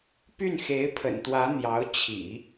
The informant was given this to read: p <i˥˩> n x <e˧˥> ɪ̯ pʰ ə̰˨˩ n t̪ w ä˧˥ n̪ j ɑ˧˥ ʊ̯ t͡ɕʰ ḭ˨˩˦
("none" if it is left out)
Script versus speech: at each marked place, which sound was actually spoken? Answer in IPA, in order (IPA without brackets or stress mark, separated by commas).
y˥˩, e˧˥